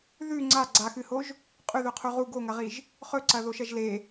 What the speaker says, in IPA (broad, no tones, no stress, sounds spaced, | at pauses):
ð ʉ ŋ͡ǀ a ɡ͡ǀ a x ɨ h o ʒ | qʼ ʉ ð ɵ qʰ u ʁ u ɡ o ŋ ɐ ʁ i ʒ | χ ɵ ǀ ɐ ð o ʃ ɐ ʒ l e